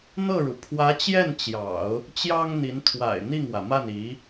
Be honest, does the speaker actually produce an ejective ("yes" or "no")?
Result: no